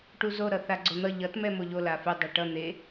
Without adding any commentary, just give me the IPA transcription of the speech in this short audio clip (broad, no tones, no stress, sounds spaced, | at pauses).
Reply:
ʈ u z o ɾ ʌ θ a ɡ͡ǀ o n̪ ʌ ʎ ʌ t m ɛ m o ʎ o l a f e dˤ o ʈ ʌ n̪ e